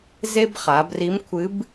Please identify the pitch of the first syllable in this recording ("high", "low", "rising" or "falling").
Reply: high